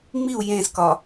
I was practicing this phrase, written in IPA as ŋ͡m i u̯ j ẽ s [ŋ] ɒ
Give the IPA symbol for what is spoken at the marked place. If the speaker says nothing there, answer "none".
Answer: k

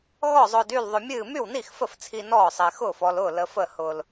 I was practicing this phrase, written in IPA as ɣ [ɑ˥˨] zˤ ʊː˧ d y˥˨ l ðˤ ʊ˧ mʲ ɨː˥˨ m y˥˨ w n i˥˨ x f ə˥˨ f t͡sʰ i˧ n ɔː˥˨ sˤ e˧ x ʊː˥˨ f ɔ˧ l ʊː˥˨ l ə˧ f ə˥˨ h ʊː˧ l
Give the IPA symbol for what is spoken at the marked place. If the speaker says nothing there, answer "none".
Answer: ɔ˥˨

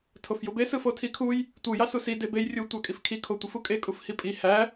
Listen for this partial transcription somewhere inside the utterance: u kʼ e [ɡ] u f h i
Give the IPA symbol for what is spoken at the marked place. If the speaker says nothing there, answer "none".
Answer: kʼ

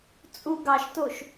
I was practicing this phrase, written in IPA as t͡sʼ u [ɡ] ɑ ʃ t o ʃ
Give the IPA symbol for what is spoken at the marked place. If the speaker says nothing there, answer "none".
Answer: ɡ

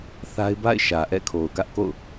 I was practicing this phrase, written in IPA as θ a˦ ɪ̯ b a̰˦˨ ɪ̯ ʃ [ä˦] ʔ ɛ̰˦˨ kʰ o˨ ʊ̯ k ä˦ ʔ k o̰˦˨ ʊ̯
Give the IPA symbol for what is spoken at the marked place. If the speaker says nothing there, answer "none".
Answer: ä˨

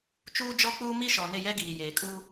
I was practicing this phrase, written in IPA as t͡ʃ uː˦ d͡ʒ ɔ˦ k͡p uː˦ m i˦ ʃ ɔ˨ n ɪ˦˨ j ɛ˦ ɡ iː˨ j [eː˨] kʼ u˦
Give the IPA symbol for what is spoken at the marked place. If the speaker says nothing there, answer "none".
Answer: eː˨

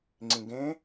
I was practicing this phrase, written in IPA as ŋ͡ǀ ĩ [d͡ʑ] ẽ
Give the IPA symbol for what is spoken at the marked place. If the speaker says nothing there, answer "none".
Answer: ɡ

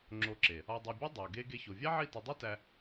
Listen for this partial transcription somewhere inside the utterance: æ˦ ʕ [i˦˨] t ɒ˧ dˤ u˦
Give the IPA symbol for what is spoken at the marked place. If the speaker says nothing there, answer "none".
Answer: i˦˨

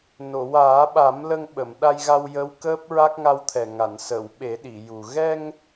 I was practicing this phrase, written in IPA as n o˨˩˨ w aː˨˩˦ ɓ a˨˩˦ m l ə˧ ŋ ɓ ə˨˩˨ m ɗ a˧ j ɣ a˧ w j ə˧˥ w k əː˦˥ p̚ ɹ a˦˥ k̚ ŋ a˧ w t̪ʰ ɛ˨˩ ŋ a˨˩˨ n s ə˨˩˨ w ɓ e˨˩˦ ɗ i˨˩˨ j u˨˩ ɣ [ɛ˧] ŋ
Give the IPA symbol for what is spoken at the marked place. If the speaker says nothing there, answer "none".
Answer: ɛ˧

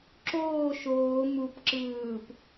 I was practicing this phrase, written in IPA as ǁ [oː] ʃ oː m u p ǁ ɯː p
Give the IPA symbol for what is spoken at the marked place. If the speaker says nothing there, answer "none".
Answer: oː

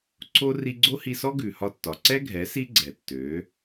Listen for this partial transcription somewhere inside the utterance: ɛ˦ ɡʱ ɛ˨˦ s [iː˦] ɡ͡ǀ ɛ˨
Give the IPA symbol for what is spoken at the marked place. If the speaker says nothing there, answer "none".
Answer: i˦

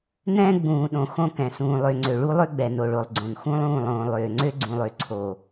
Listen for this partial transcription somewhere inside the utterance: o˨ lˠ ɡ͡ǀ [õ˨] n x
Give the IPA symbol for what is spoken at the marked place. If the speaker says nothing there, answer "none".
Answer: õ˨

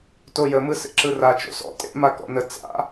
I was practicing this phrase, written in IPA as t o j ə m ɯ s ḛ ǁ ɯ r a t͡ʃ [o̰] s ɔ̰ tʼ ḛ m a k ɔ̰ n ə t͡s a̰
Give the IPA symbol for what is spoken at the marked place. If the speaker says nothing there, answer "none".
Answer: o̰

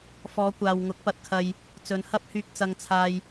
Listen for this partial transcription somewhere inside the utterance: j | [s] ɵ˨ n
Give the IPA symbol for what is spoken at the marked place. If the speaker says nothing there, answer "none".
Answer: t͡s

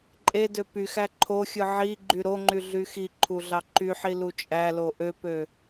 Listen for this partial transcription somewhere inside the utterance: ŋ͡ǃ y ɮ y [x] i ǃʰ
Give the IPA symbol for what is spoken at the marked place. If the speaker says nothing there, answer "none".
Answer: x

